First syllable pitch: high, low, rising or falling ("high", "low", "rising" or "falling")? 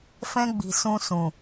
high